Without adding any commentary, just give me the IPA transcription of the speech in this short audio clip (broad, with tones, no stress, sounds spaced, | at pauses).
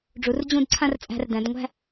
ɖ͡ʐ u˩˧ r d͡ʑ ũ˥˧ d ǀʰ ã˥ r t͡sʼ æ̤˧ r d æ̃˩˧ d ŋʷ æ̤˥˧